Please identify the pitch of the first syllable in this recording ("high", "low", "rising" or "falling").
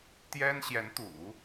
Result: high